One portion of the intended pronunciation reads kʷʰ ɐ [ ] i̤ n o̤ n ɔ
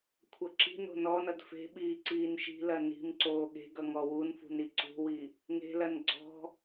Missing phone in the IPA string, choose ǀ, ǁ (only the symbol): ǁ